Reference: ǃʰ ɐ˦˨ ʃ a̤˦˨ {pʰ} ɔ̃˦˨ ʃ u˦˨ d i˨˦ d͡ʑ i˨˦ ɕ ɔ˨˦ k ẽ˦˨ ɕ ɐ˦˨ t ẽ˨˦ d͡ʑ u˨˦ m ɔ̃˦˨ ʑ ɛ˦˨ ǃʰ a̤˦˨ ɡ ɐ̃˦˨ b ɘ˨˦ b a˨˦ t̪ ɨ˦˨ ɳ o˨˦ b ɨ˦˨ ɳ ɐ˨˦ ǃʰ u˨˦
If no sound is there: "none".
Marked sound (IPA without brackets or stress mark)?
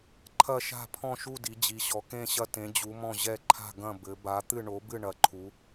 pʰ